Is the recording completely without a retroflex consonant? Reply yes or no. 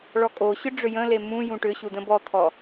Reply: no